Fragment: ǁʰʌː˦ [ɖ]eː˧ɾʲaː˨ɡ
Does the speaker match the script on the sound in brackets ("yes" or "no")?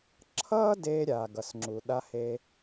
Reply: no